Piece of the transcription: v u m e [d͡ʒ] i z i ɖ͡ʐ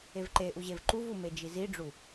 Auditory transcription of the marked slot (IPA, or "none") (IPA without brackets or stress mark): d͡ʒ